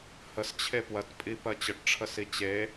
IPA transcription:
h ə s t͡ɕʰ e p w ɜ t pʼ i p ɜ t͡ɕ ə ʈ ʈ͡ʂʰ ə s i t͡ɕ e

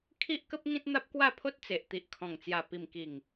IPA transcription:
kʰ i˦ ʔ k ə˦ p̚ ŋ ĩ˦ t̚ n̪ a˦ p̚ k w a˥˧ pʰ o˦ t̚ t͡s e˨ ʔ t̪ i˨ ʔ kʰ ɔ̃˨˩ ŋ t͡s j a˨˩ p i˨˩ m k i˨˩ ŋ

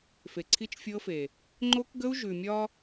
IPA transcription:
f e˨ ǀʰ i˦ t͡ʃ fʲ ɤ˦ f e˨ | ŋ͡ǃ o˦ k ɡ ə˦ u̯ ʒ ʉ˨ mʲ ɒ˦

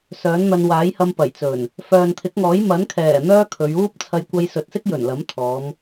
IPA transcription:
s œː˨˥ n n̪ ɐ˧ n w aː˨˥ j h ɐ˧ m p ɐ˨˩ j t͡s ɵ˨˩ n | f œː˨ n t̪ʰ ɪ˨˥ k̚ ŋ ɔː˨˥ j m ɐ˨˥ n kʰ ɛː˨˩ n̪ œː˥ kʰ ɵ˨˧ ɥ uː˥ p̚ t͡sʰ ɐ˧ j kʷ ɐ˧ j s ɵ˨˥ t̚ s ɪ˥ k̚ j ɵ˨˩ n l ɐ˨˥ m t̪ʰ ɔː˨˧ m

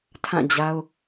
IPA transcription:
tʰ ã˦˨ d͡ʑ a˦ ʊ̯

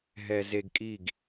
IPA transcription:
ɦ ɛ˧ z e˧ ɡ kʼ i˦˨ ɡ

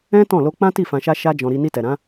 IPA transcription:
ɛ̃˦ t ɔ̃˦˨ l o˧ k͡p ã˦ t i˦˨ f ã˧ ʃ a˦ ʃ a˦ d͡ʒ ɔ̃˧ ɾ i˧ n i˧ t ɛ˨ ɾ ã˨˦

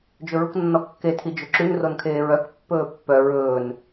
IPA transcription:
d͡ʒ ɵ ɹ u k nː ɔ kː e tʰ i d͡ʒ ɵ ǁ ʉ n r o n kʰ eː ɹ œ k pː ɵː pː œ ɹ ɵː n

